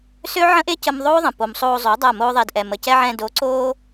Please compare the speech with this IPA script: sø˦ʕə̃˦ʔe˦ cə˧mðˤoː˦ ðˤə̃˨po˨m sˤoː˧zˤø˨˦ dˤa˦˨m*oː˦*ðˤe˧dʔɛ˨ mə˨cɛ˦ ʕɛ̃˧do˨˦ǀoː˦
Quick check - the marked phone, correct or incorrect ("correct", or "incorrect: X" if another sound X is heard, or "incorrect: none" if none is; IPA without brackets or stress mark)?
correct